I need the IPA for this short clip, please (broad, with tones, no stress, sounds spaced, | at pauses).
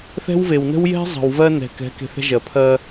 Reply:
θ ɛ̤˦ w v e˨ w n ə̤˦ w j ɛ̤˦ zˤ ə̤˨ w v ɜ˦ n ɛ̤˨ k ɛ̤˨˦ k e̤˨ θ ɛ̤˦ ʒ ɜ˨ pʰ ɜ˦